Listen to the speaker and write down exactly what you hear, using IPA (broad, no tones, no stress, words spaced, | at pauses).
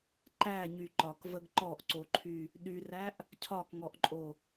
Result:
ǃæɲy ǃɒkvəɡ ǃɔʔǀoǃʰy | ɗyræʔ | cʰɒkŋɔʔǃʼo